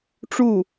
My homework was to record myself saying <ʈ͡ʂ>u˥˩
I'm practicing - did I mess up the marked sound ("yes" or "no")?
no